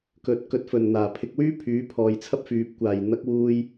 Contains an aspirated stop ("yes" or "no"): yes